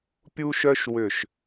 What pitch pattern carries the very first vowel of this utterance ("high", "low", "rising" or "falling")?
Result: high